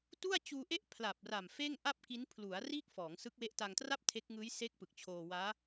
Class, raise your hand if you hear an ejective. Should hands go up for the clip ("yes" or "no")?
no